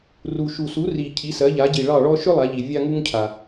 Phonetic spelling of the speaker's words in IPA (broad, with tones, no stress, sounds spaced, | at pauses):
r u˨ ʃ u˨ s u˨˦ r i˨ cʰ i˨˦ s ɜ˨˦ ʎ a˨˦ ɟ i˨ ɭ ɑ˦˨ ɭ ɔ˦ ʃ ʏ˦ lˠ a˨˦ ʎ i˨ vʲ a˦ ŋ u˦ ŋ cʰ a˨